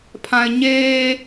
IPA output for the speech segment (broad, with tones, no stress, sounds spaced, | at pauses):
pʰ ã˦ ɪ̯ ɲ eː˦